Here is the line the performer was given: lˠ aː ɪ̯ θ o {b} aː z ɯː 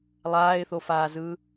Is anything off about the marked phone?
yes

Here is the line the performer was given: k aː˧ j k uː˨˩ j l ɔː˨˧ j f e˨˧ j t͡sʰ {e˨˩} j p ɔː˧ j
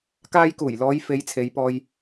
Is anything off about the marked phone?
yes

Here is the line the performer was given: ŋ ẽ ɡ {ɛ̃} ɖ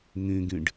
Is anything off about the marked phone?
yes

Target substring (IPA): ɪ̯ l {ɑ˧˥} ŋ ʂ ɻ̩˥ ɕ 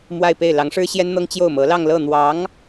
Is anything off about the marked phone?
no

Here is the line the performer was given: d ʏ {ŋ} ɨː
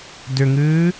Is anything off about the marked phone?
no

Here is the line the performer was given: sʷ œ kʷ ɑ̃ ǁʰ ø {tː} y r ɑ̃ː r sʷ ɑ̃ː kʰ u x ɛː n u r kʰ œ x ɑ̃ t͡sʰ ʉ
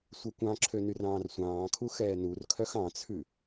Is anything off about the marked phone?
yes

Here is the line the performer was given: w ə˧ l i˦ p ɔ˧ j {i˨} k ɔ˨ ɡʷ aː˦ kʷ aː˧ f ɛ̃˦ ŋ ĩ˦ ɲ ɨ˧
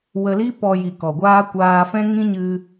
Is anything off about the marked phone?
no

